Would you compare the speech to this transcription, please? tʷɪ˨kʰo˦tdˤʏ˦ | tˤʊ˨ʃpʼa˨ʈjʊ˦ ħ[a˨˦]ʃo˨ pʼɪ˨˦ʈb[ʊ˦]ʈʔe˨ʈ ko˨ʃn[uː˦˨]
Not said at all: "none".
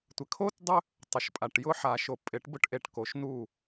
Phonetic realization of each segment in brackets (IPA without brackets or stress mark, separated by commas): a˨, ʊ˦, u˦˨